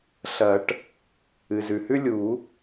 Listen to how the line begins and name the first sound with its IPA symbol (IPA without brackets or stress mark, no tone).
ɬ